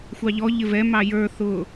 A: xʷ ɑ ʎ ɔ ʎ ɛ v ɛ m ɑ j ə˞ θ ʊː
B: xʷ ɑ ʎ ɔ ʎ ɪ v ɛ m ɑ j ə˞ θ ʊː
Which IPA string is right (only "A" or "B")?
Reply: B